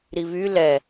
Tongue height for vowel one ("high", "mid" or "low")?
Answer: high